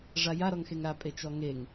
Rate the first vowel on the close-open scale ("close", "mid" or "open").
open